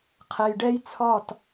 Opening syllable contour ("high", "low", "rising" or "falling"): low